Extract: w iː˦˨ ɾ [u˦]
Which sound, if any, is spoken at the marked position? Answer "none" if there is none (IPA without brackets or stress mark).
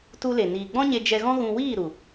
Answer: u˨